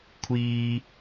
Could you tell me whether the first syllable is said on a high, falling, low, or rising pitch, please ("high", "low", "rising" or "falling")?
low